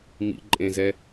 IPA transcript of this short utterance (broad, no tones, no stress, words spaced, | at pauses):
mḭǃʼẽzɛ